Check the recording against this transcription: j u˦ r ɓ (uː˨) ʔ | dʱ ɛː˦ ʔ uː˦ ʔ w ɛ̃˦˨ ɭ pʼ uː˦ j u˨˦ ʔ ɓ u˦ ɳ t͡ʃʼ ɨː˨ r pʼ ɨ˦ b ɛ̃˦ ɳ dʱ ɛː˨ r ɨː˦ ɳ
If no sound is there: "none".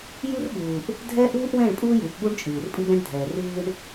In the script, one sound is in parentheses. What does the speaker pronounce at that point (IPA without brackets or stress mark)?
uː˨